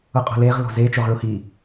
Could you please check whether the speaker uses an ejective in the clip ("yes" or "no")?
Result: yes